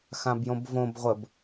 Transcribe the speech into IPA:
x ã b j õ b v õ b ʁʷ ə b

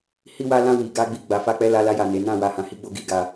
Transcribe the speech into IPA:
h i˧ w a˧ l ã˧ w i˧ ɡ a˦ ɡ͡b i˧ ɡ͡b a˧ f a˦ k͡p ɛ˦ l a˦ l a˦ j a˦˨ n e˨˦ n ã˦˨ w a˨˦ h ã˧ h i˦ ɡ͡b o˦ ɡ i˧ ɡ a˧

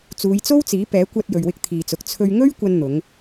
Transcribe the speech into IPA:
t͡s uː˨˧ j t͡s o˥ w t͡s iː˨˥ p ɛː˨˥ kʷ ɐ˧ t̚ j ɵ˨ ɥ w ɪ˧ k̚ t̪ʰ iː˨ t͡s ʊ˨ k̚ t͡sʰ ɵ˧ ɥ ŋ ɵ˥ ɥ kʷ ɐ˧ n n̪ ʊ˨˧ ŋ

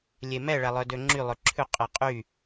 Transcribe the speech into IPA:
lʲ e m ɛ ɭ æ lˠ œ d ø ŋ͡ǁ y lˠ ɵ ǁʰ ʉ qʼ ɛ qʼ y

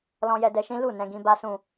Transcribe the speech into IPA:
l ɔ̃˧ j ɛ˧ d ɛ˧ ʃ ĩ˦ l u˦˨ n ɛ̃˧ ɡ ĩ˦ b a˦ s ũ˦˨

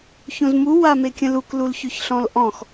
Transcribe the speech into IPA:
ç õ z m u w a m e kʲ ə̃ l u k l u l ç ø ç ɬ ɔ̃ l ʔ ɔ̃ x

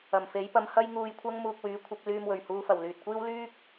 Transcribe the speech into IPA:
ɐ˨˩ m f e˨˥ j p ɐ˧ m h ɐ˥ j ŋ uː˧ j kʷʰ ɐ˥ ŋ m uː˧ k̚ w yː˨˥ kʷʰ ɐ˨˥ k̚ l yː˧ m w ɵ˨˩ ɥ h uː˧ f ɐ˨˩ w l yː˨ t̚ kʷ iː˥ w l yː˥ k̚

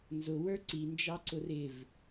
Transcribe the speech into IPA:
n z ʊ w ə˞ ǀ i n d͡ʒ ɑ ǀ ʊ r ɪ v

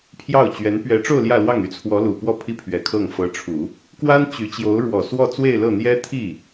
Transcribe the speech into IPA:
pʰ j ɑ˥˩ ʊ̯ t͡ɕ ɥ ɛ˧˥ n p ɥ ɛ˧˥ ʈ͡ʂ o˥˧ ʊ̯ l j ä˥˧ l w ɑ˥˩ ŋ y˥ t͡sʰ w ɔ˧˥ l u˨˩ p w ɔ˥˩ pʰ i˥ pʰ ɥ ɛ˨˩ kʰ ɤ˥˩ ŋ f ɤ˧˥ ʈ͡ʂʰ u˨˩˦ | k w a˥ n t͡ɕ y˧˥ t͡ɕ j o˧˥ ʊ̯ ɻ w ɔ˨˩ s w ɔ˥˧ t͡s w e˥˧ ɪ̯ l ɤ˥˩ n̪ j ɛ˥ t̪ʰ i˥˩

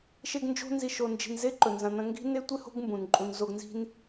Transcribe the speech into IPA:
ʃ e˦ ɡ n d͡ʒ o̤˥ n z i˨ ʃ o˨ n d͡ʒ i̤˨ n z e˥ ǃ ɵ˩ n z ɐ̃˨ n ɐ̃˦ ŋ ɡ i̤˥ n e˥ tʷ e˥ h o̤˦ ɡ m b ũ˩ n ǃʼ ũ˨ n z o˦ ɡ n z i̤˥ n

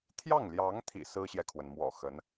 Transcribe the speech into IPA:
t̪ʰ j ɑ˥˩ ŋ l j ɑ˧˥ ŋ t̪ʰ ḭ˨˩ s ɹ̩˥ ɕ j ɛ˨ kʰ w ə˩ n m w ɔ̰˨˩ x ə˧˥ n

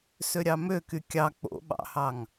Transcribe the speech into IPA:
s ø ɾʲ ɑ m ø k y kʲ ɑ k͡p o̰ ɓ ɑ̰ h ɑ ŋ

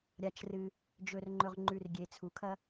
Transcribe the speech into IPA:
ɾʲ a˩ t͡ʃ r ɨ˩ | d͡ʒ ɵ˩ r ŋ͡ǃ ɵ˩ ʁ ŋ͡ǃ ʉ˩ r ɡʲ e˩ t͡sʰ u˩ kʰ ɐ˦

